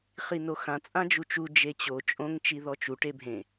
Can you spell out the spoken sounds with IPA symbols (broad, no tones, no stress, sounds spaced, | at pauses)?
χ i n o x ã t͡sʼ ã d͡ʒ u t͡ʃ u d͡ʒ e t͡ɕ o t͡ʃʼ õ ŋ t͡ʃ i ð ɔ t͡ʃ u ʈ e bʱ ẽ